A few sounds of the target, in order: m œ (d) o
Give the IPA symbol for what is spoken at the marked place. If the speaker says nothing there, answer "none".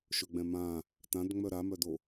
d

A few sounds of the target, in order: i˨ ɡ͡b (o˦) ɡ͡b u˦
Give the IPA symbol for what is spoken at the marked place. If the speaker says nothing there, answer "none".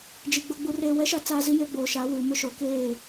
o˦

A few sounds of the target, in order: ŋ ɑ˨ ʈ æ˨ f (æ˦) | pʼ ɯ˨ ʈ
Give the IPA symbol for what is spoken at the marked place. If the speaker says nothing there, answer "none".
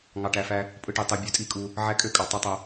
æ˦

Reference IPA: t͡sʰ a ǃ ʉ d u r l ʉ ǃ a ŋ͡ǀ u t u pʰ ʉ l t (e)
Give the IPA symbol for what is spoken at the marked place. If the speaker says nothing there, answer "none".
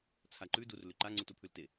e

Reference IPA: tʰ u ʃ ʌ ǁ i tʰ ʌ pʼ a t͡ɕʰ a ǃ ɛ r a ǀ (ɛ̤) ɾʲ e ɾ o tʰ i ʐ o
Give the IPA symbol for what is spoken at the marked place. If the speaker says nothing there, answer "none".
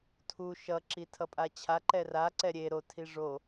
ɛ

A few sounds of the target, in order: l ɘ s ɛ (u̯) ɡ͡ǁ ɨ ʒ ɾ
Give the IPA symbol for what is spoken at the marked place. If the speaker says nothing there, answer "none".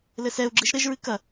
u̯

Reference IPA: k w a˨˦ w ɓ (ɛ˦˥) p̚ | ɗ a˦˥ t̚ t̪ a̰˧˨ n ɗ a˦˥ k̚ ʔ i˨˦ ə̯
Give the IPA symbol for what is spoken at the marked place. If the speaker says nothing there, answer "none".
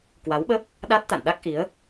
ə˦˥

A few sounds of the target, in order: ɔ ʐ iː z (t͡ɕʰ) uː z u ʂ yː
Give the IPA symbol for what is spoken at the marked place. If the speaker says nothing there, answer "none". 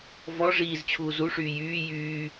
t͡ɕʰ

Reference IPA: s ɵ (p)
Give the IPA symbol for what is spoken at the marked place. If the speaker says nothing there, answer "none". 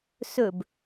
b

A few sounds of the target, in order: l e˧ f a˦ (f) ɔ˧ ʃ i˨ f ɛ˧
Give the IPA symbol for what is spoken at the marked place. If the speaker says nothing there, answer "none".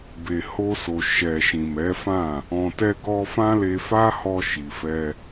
h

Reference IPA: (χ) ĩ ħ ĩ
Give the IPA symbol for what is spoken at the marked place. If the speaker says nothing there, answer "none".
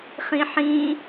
χ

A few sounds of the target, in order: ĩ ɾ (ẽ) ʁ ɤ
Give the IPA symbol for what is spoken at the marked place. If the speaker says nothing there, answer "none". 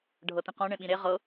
e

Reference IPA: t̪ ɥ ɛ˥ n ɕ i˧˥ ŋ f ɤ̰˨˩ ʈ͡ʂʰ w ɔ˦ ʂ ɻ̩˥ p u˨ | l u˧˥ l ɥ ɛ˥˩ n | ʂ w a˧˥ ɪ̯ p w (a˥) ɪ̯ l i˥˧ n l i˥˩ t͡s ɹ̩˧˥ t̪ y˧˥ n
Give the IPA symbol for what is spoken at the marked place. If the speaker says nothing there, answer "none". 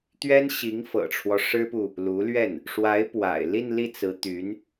a̰˨˩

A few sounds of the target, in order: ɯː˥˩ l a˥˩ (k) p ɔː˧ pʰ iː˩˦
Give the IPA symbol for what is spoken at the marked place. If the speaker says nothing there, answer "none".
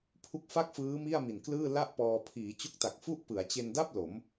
ʔ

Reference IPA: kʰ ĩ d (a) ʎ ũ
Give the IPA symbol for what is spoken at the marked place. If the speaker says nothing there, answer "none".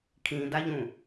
a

